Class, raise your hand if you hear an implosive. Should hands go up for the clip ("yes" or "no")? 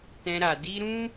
no